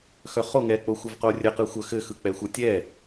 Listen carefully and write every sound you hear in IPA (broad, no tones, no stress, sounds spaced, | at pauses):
x œ χ o ŋ ɛ k͡p o xʷ ə v q o rʲ ɘ q ɯ xʷ œ x ɘ x ɯ k͡p ɛ xʷ ɯ tʲ ɛ